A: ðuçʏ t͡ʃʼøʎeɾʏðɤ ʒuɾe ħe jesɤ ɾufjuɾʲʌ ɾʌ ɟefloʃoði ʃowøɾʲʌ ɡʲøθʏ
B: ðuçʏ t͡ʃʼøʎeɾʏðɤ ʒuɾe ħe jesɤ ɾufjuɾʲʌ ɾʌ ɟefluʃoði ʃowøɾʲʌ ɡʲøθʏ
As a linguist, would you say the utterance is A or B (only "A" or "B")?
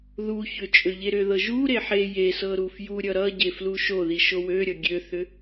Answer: B